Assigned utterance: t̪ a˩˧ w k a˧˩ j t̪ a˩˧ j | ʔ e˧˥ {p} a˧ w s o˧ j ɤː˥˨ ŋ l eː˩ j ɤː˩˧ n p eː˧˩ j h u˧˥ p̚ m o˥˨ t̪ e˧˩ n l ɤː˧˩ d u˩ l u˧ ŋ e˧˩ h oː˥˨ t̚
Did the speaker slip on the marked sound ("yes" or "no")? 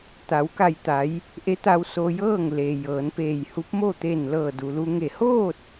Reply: yes